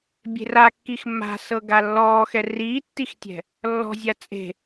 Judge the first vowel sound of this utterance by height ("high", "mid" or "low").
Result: mid